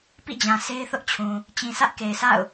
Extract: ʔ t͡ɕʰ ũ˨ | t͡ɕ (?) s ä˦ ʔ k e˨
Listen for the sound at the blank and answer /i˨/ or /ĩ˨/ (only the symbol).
ĩ˨